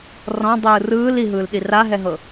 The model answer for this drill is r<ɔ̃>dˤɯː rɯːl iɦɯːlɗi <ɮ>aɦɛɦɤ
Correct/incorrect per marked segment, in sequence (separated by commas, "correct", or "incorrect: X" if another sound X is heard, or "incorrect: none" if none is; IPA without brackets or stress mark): correct, incorrect: r